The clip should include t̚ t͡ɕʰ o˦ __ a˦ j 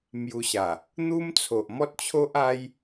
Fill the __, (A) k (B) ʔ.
B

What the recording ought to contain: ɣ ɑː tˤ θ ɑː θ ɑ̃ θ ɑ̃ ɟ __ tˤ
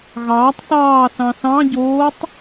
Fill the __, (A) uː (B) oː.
B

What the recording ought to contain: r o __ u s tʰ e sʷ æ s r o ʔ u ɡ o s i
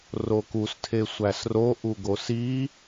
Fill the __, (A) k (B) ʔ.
A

